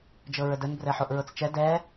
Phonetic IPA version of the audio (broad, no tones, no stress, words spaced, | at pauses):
d͡ʒɤɹədən brɛħoʔɹɤt͡st͡ʃɛ dɛ